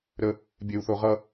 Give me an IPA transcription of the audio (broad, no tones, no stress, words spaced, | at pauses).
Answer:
ɾə | bʲeu̯θoʁʌ